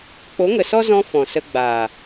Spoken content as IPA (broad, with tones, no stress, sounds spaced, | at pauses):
k͡p o˨˦ ŋ ə˨ s ɔ˦ z ɔ̃˧ f ɔ̃˨ s ə˧ ɡ͡b aː˨